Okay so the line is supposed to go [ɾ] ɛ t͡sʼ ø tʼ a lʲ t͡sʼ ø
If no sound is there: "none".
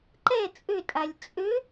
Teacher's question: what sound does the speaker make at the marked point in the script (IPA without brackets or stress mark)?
ǃ